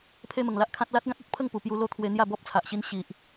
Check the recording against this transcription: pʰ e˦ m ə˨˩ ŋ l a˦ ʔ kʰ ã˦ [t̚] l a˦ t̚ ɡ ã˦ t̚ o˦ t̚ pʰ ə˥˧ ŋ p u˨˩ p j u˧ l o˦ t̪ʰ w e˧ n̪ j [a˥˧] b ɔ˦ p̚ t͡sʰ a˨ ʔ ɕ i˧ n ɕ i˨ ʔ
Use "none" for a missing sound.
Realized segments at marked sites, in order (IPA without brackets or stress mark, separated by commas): t̚, a˥˧